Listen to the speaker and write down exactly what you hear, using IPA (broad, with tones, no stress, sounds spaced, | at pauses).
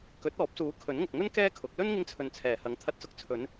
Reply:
k ɵ˨˥ t̚ ɔː˨˥ p̚ s uː˨˥ kʰ ɵ˨˥ n ŋ ʊ˨ k̚ ŋ ɵ˥ n k ɛː˥ kʰ ʊ˨˥ k̚ l ɵ˥ n ŋ ɪ˧ ŋ t͡sʰ ɵ˨ n t͡sʰ ɛː˨˩ h ɐ˨˥ ŋ t̪ʰ ɐ˧ t̚ s ʊ˧ k̚ t͡sʰ ɵ˨˧ n